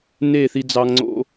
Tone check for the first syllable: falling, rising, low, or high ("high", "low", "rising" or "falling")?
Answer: falling